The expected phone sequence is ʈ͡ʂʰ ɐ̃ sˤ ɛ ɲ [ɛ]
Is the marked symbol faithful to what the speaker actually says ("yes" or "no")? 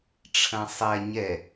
yes